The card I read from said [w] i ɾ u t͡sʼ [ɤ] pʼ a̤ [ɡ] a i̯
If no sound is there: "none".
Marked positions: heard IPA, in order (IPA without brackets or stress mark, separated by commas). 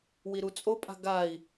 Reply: w, o, ɡ